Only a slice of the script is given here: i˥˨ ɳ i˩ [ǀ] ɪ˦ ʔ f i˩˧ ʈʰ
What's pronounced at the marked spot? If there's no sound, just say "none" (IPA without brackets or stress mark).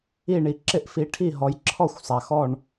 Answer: ǁ